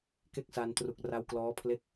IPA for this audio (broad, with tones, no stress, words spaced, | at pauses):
ke˥˩k̚sa˧ntru˨˩k̚ ra˦˥wklɔː˦˥pʰle˥˩k̚